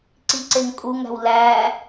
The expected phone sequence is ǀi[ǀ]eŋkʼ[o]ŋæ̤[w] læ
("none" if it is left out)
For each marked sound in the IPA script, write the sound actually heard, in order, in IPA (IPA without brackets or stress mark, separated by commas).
ǀ, u, w